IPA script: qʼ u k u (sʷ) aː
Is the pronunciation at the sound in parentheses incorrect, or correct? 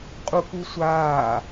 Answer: correct